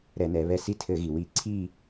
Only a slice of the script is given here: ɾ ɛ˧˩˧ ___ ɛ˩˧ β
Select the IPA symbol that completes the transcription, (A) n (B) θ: A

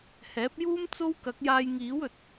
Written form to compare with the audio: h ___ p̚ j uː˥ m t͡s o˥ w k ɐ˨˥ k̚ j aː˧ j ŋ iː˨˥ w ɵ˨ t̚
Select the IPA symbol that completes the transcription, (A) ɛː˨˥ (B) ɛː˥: A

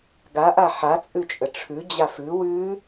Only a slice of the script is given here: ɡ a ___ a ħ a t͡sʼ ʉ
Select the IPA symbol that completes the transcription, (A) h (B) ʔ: B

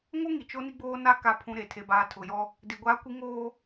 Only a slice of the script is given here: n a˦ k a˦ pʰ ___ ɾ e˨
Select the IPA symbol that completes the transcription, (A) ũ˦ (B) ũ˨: A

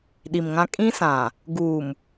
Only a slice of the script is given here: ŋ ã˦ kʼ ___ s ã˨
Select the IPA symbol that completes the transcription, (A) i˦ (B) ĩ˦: B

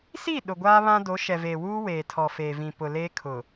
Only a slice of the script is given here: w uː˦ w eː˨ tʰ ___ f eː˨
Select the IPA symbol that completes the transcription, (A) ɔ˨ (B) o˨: A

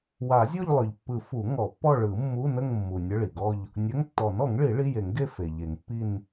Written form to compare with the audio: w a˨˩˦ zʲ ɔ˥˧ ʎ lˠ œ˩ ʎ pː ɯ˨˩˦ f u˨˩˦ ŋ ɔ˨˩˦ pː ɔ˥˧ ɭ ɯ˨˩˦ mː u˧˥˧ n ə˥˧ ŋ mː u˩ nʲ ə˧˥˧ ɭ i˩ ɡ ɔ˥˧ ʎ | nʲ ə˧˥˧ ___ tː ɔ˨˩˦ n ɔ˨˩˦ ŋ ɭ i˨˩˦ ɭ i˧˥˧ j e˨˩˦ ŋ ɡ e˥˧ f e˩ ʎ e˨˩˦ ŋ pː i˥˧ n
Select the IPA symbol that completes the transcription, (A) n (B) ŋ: B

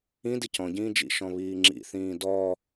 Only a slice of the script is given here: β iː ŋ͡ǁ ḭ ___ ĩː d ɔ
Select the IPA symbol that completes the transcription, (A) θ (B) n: A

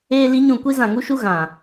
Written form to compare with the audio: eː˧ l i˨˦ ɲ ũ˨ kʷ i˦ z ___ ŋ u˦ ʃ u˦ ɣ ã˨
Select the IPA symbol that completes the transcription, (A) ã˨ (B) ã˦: A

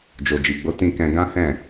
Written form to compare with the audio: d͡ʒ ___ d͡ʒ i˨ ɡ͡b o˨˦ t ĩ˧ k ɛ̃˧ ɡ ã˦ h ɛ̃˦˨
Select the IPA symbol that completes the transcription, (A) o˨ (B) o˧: A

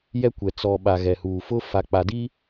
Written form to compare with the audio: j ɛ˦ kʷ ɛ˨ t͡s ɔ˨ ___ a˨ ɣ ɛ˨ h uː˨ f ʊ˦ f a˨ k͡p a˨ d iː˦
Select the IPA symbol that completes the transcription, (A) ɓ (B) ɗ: A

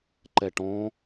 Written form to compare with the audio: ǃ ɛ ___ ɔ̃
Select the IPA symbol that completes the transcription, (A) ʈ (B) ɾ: A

